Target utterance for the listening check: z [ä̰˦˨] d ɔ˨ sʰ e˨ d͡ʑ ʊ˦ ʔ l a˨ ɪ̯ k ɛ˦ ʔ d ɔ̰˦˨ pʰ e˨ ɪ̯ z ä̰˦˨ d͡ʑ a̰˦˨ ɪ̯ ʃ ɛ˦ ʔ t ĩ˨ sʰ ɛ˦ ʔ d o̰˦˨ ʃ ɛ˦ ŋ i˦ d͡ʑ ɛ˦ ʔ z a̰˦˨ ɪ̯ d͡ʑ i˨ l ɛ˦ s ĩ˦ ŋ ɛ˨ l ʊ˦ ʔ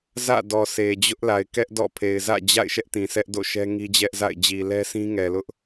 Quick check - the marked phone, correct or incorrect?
correct